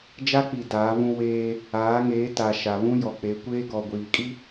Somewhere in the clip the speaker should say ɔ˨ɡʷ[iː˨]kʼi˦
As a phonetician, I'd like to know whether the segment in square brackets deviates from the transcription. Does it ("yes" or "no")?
no